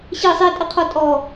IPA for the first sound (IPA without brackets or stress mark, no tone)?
ɕ